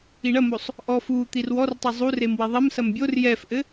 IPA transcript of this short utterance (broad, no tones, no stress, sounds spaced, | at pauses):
i ɳ ɐ m o sˤ | ʔ ɔ f u t̪ i r w ɔ r tˤ ɘ zˤ u r e m w i ðˤ e m s ɐ m bʲ o r j ɛ f ʔ ɘ